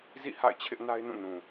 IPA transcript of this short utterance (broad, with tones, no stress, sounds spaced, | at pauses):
z ḭ˦˨ h a̰˦˨ ɪ̯ t͡ɕʰ ɪ˦ ʔ n a˦ ɪ̯ n ũ˦˨ n ũ˨